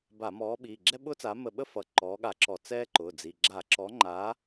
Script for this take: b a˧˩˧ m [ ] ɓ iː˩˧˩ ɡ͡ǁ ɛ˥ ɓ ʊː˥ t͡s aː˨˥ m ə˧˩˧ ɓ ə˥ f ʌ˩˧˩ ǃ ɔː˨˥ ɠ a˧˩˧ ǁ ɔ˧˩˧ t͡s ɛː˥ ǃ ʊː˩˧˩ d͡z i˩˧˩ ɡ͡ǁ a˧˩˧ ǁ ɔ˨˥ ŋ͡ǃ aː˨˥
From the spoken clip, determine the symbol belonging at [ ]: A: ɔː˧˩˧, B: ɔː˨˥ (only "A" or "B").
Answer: B